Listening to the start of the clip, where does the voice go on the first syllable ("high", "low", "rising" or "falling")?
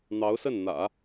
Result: rising